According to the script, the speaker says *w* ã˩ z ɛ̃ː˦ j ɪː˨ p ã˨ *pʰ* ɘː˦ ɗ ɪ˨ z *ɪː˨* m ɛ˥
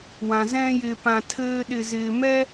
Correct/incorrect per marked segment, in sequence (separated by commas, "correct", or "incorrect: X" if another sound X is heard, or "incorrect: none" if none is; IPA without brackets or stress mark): correct, incorrect: tʰ, correct